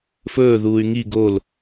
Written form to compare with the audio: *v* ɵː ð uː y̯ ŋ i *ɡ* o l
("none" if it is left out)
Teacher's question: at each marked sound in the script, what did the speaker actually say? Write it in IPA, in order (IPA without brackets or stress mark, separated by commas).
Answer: f, ɡ